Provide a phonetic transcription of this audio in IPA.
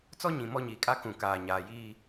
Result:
t͡s ɔ˦ ɲ ĩ˨ m ɔ˦ ɲ iː˨ kʼ a˦ k ũ˨ k aː˨ ɲ aː˨ j iː˦

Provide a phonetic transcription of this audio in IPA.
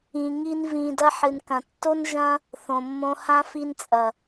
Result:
ĩ˧ ŋ i˦ n v ĩ˧ d ɐ˦ ħ ɨ˨ n k ɐ̃˨ tː o˦ n ʒ ɐ̃˦ | θ õ˨ mː õ˧ h ã˦ f i˧ n t͡sʼ ɐ˨

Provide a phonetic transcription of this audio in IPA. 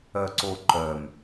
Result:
œ ǀ o ǃ œ m

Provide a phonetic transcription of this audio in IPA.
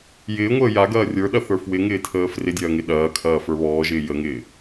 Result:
j ɪː ŋʷ əː j a ɡ ɐː rʲ ə˞ ɗ ɐ θ ə˞ f w ɪ ŋ ɪː tʰ əː f r ɪ dʲ ɐː ŋ ɪ ɗ ɐː kʰ ɐː f ə˞ β ɔː ʒ ɪː j ə ŋ ɪː

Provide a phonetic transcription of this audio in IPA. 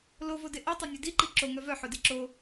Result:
l o v o d e ʔ ɔ tˤ o nʲ œ d i ǃ i ǁ o ŋ œ v œ ħ o d e ǁ o

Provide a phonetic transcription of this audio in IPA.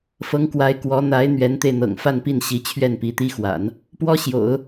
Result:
f ɤ˧˥ ŋ k w a˧˥ ɪ̯ k w ɔ˧˥ n̪ a˧˥ ɪ̯ n̪ ɥ ɛ˧˥ n t̪ e˧ ɪ̯ n̪ ɤ̰˨˩ ŋ f a˥˧ n p i˥˩ n ɕ i˧˥ t͡ɕʰ ɥ ɛ˥˩ n p i˧˥ t̪ i˥ x w a̰˨˩˦ n | p w ɔ˥ ɕ j o̰˨˩˦ ʊ̯

